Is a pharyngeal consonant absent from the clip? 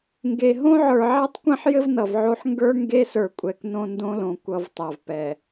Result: no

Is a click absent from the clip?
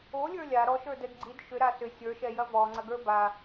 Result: no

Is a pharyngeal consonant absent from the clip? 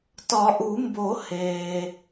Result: yes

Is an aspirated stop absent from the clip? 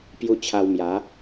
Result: no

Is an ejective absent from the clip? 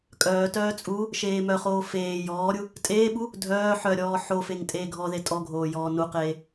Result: no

